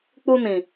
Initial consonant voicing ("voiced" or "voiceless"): voiceless